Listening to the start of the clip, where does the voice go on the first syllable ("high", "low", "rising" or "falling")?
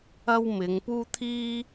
high